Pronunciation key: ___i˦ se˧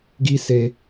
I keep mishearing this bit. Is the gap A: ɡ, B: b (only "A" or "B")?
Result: A